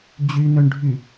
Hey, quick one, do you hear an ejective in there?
no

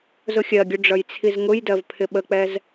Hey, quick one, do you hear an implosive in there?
yes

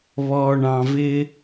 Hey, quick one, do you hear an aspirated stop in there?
no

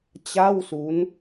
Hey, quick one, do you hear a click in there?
no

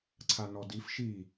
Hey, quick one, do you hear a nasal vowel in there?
no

